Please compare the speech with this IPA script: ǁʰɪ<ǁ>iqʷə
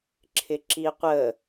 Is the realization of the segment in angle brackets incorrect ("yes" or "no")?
no